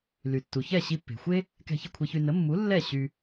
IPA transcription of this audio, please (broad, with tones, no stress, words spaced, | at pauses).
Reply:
ly˩tːu˩çɛ˥˩ ɕi˧pːe̤˩xʷe˥ | kɛ̤˧çə˥˩kʷʰe˧çy˧ nə˩˥ mːu˩˥ lːɛ˥˩ ɕy˧